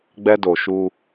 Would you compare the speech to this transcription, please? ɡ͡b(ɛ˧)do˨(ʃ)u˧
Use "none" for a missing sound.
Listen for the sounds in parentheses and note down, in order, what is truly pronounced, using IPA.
ɛ˧, ʃ

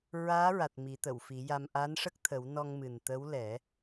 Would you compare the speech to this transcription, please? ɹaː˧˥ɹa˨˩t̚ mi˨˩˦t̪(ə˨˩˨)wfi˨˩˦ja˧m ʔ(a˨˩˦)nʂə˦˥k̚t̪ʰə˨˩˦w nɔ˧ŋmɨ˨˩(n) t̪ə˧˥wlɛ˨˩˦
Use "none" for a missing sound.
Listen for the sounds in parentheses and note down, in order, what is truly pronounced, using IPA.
ə˨˩˨, a˧˥, n

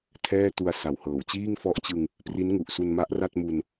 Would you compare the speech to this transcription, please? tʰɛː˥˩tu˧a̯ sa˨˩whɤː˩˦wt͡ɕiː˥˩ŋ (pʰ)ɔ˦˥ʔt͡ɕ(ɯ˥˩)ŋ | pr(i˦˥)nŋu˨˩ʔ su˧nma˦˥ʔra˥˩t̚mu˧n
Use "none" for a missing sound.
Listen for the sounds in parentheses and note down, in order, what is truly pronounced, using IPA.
f, ɯ˧, i˦˥

